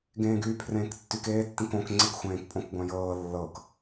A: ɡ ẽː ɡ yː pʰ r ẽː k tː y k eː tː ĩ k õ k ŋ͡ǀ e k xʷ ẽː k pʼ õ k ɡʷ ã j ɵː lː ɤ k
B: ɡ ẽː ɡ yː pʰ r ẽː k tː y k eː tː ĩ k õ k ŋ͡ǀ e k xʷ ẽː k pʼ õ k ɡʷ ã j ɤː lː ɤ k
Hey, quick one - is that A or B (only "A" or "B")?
B